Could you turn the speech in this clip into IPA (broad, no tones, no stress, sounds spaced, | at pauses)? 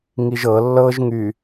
ŋ i ʒ ɤ lː ɤ ʒ ŋ y